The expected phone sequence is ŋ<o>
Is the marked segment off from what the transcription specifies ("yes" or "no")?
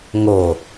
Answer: no